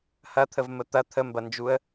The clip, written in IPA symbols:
hɐt̪ʰəvmə t̪ɐ t̪ʰəmbɐnd͡ʒuə̯

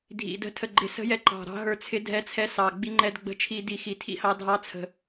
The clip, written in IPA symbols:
dʱḭ˨˩də̤˨˥ tʰə˨˩ɡ͡ǃɪ˨˩sə̤˨˥jɛ˨˥ ǃɑ̤˨˩ɾɑ̤˨˥ ɦə˞˧t͡sʰɪ˨˥dʱɛ˨˥t͡sʰɛ˨˥ sɑ˨˩ɡ͡bi˧ŋ͡ǃɛ˧d ɡ͡bə̤˧ t͡ʃʰi˧di˨˩ xi˨˩tʰḭ˧hɑ˧ dʱɑ˨˥t͡sʰə̤˨˩

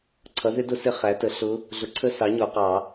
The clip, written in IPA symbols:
ǀʰʌ˩˥ðɪ˧˥dʊ˧˥sɪ˧˥ χæ˩˥tə˩˥ɬʊ˧˥ | ɮʊ˩˥ǀʰə˧˥ sɑ˩˥ ɲɔ˨˩˦qɑ˨˩˦

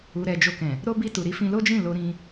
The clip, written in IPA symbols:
u˨ɾɛ˨ d͡ʒo˧kɛ̃˨ | ɾo˧ bi˧ tu˨ɾi˧fĩ˧ lo˦d͡ʒĩ˦˨ lo˧ɾĩ˧

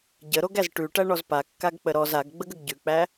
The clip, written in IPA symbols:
ɟəɾoɡæz ʈʉʈæɳɔz pakːaɡk͡pə ɾɔz aɡɡ͡bəɡəɡ ɟʉk͡pæ

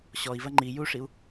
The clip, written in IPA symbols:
ɕɔi̯vɐ ŋ͡ǃi juʂiu̯

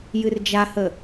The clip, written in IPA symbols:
jɨrd͡ʒahə

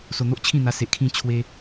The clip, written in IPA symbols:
so˧n̪o˦ʔ t͡ɕʰĩ˥˧n̪a˧ se˨ʔkʰĩ˧ t͡ɕʰwe˧

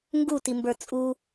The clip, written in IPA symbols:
ŋɡutimbə˞ t͡sʼu

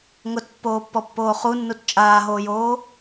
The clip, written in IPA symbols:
ŋʊtpːoːpːɔpːoː χunːut t͡ʃʼaːɦoːjoː

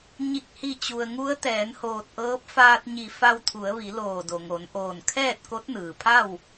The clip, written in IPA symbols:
ɲi˧˩k̚hi˧˩t͡ɕu˩ə̯ ŋu˧˥ə̯t̪ɛː˩˧nhoː˧˩t̚ʔɤː˧˥p̚ faː˧t̚ɲi˧˩ fa˧wt̪ʰu˩˧ə̯ʋi˩˧ loː˧˩do˩ŋo˩˧n ʔoː˧˩nkʰɛː˥˨t̚ ko˧˥t̚nɯː˩pʰa˥˨w

